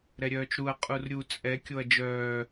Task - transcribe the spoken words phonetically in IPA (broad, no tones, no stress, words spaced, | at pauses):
ɾɛɾʲœːt͡ʃɾuɐ̯ qʼurɾʲu t͡sʼɛ kʲoɐ̯d͡ʒœː